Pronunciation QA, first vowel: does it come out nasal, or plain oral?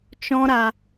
nasal